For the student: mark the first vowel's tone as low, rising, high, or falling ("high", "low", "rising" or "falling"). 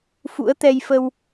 rising